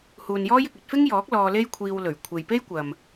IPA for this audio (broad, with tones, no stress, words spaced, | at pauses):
huː˨njɔː˥jɪ˨k̚ ɵ˧t̚fɪ˥ŋjɔː˨˥k̚ lɔː˧le˥jkʷʰiː˧w lɵ˨˩ɥkʷʰe˨jpe˥jkʷɐ˨m